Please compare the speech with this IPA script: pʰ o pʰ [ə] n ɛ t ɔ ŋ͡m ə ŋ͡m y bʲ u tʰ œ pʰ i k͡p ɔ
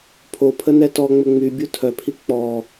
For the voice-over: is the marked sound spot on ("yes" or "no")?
yes